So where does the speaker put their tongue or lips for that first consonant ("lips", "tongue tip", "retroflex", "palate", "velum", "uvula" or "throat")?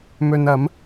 lips